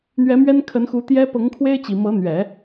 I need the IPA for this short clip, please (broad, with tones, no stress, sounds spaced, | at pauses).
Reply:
n̪ ɥ ɛ˧˥ m ɥ ɛ˥ n kʰ ə˧˥ n x u˧˥ t̪ j ɛ˥ p ɤ˧˥ ŋ kʰ w e˥ ɪ̯ t͡ɕ i˨˩ m ɤ˧˥ n̪ ɥ ɛ˨˩˦